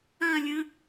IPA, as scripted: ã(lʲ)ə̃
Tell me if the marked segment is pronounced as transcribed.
yes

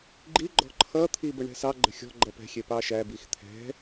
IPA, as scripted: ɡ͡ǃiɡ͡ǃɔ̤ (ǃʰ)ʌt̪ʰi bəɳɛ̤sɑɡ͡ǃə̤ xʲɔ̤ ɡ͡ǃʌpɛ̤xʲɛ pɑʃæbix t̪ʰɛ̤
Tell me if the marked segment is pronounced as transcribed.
yes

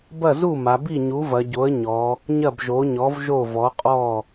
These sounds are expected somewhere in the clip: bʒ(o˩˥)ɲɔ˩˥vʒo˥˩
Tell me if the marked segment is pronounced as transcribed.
yes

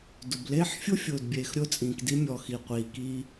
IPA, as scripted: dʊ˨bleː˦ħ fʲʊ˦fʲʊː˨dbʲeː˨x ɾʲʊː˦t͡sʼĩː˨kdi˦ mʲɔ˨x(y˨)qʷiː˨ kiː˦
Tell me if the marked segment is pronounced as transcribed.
no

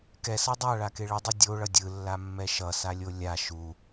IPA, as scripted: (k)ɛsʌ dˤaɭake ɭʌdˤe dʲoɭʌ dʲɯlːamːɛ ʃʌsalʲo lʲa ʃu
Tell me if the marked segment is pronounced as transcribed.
yes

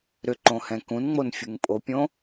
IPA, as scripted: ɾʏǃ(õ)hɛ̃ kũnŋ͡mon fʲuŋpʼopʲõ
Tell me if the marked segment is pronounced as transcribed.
yes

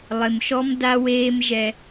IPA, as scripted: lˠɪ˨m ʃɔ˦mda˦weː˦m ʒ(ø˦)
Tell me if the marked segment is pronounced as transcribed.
no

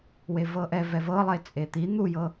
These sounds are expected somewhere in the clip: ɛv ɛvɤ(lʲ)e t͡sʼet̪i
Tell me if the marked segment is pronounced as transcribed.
no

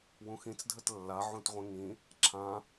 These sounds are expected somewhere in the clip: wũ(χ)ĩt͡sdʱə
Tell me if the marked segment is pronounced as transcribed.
no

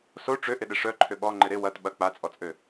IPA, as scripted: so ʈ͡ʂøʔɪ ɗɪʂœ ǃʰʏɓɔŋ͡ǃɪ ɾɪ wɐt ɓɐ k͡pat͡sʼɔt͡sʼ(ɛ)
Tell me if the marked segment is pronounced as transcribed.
no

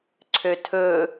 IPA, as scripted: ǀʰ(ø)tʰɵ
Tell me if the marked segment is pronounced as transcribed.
yes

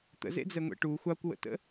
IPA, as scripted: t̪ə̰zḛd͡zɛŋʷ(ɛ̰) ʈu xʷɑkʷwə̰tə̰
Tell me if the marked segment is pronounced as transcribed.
no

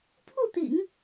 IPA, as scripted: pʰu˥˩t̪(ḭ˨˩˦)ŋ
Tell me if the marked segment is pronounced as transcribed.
yes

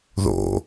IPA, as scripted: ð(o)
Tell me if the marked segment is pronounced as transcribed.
no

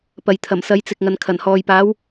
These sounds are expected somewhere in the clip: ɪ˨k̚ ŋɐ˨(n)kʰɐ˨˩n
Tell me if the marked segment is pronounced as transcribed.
yes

